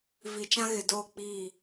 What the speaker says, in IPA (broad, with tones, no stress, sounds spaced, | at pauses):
v i˨ t͡ʃ ã˦ ɣ ɪ˨ d oː˦˨ k͡p iː˦˨